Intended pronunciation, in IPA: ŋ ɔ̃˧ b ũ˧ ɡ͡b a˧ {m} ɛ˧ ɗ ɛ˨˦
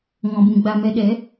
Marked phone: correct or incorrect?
correct